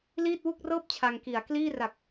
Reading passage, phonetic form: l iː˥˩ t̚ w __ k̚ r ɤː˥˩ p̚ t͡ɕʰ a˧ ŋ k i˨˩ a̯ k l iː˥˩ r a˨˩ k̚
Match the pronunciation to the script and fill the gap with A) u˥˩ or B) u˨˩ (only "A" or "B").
A